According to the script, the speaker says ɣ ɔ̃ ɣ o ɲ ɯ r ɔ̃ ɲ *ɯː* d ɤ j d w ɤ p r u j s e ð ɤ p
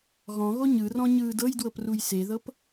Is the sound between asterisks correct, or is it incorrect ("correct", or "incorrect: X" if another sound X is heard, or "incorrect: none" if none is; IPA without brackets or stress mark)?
correct